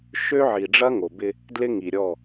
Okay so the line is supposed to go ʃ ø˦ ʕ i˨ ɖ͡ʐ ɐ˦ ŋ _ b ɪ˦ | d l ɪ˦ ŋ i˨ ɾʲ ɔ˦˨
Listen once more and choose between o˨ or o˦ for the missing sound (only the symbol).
o˨